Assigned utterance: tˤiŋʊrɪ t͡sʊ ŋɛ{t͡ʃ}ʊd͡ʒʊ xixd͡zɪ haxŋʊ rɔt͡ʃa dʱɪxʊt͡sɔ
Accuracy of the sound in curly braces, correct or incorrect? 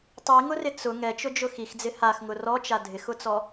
correct